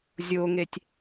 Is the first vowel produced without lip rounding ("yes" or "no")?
no